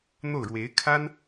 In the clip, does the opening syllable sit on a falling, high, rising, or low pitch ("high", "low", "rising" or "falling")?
falling